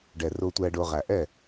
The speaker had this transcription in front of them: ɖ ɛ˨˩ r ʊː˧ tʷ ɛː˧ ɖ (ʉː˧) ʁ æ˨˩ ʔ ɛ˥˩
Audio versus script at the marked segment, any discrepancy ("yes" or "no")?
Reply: yes